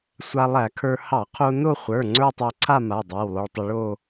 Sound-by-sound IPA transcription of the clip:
sʷ a˧ lˠ æ˧˩˧ kʰ ə˞˧ h ɑ˧˩˧ qʰ o˧ n o˥˧ χʷ ə˞˩˧˩ ŋ͡ǀ ə˞˥˧ tˤ æ˧ ǀʰ a˥˧ m a˩˧˩ dˤ æ˩˧˩ w lˠ o˧ ɭ tˤ ʊ˧ ɭ o˥˧

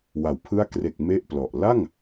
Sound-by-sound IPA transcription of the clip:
w a˩˦ w pʰ ɯ˥˩ a̯ k r e˨˩ k̚ m e˥˩ ʔ p l ɔ˨˩ ʔ l a˥˩ ŋ

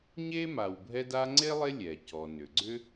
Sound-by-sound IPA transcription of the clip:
ɲ e˥ m a˨ w bʱ ɛ˦ d a˦ ŋ͡ǀ e˥ lˠ e˦ lʲ ɛ˩ c ɔ˩ n ʏ˩ ɡ͡ǀ ʏ˥

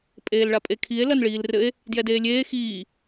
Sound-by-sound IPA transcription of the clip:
pʼ eː l ɭ a pʼ e kʰ i e̯ l ɐ n ɭ iː l r ɘ e̯ | d j ɛ d eː lʲ eː x iː

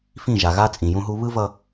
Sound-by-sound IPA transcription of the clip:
f ĩ˦˨ ʒ a˨ ɣ a˦ t͡sʼ ĩ˨ j ũ˦ ɦ u˦ β ɯ˦ v ʌ˦

